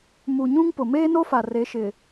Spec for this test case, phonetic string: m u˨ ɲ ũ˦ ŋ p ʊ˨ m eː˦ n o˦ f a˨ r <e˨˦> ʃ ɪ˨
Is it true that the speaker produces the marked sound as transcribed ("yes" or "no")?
yes